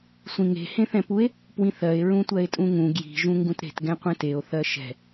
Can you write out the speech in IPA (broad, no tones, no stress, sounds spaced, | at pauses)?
sʷ ĩ ŋ e̤ h ẽ θ ɛ̃ p u e̯ | p w ĩ θ ɜ e̯ ɹ ũ tʷ ɜ e̯ tʼ ũ ŋ ũ ɡ j i̤ ʒ ũ ŋ ɡ ũ t ɾ e̤ t ɡ ɛ̃ qʷ ɛ̃ t e o̯ θ ɜ ʃ ɛ̤